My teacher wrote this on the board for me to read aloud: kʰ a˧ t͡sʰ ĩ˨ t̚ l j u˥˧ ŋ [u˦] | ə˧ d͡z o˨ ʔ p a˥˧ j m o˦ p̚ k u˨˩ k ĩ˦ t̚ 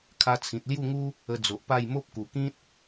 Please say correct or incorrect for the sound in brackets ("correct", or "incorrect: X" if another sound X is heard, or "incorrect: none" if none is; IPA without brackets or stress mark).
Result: correct